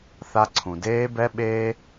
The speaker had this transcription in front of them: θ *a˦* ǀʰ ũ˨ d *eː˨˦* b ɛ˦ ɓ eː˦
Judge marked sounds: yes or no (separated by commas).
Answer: yes, no